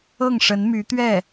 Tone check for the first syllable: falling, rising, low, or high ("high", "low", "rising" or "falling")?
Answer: falling